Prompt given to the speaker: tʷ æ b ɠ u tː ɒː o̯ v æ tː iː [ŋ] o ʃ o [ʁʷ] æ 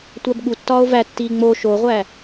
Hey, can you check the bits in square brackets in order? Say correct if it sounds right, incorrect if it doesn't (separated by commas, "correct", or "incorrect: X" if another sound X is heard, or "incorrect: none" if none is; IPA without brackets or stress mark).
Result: incorrect: ŋ͡m, correct